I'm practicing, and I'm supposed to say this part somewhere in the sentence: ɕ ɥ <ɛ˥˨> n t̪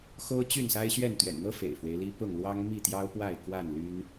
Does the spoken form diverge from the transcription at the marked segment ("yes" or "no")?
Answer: no